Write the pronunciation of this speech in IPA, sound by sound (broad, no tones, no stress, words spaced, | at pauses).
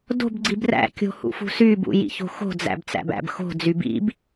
do̤bɡ͡ǀib ræ̰kʲo̤ hṵfṳsybṵ jḭço̤xo̤d͡zæ̰b t͡sæ̰bæ̰bxo̤d͡zy bḭb